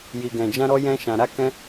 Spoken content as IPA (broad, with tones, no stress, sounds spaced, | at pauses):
j i˨ ɡ ɛ̃˨ d͡ʒ ã˧ ɾ ɔ˧ j ɛ̃˧ ʃ ã˨ ɾ a˧ k ɛ̃˧